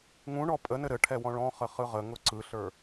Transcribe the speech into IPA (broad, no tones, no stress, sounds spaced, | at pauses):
ŋ ũ ɳ ɔ pʼ ə n ɘ ɾ ɘ ʈʰ ɛ w ɔ̃ ɭ ɔ̃ χ ə χ ɯ ʁ ə ŋ ʊ ǀ ɯ ɬ ə˞